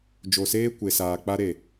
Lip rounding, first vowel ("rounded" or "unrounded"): rounded